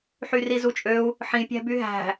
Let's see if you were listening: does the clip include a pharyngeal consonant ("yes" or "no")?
yes